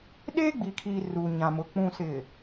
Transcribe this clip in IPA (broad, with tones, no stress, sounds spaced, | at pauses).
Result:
ɗ eː˦ ɡ͡b i˨ kʰ iː˨ r u˨ ɲ ã˨ m ʊ˨ k͡p ũ˨ s ɪ˨